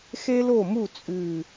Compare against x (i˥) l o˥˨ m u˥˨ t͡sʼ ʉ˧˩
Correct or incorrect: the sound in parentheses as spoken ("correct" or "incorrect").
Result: incorrect